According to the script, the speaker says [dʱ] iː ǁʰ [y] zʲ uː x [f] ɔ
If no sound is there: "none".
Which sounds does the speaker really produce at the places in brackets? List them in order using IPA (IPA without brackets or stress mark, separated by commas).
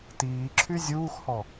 t, y, h